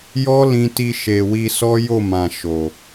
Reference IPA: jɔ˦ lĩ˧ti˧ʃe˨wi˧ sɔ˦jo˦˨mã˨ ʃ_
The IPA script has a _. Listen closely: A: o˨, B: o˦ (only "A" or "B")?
A